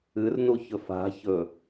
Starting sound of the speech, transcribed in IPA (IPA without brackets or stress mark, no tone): ɨ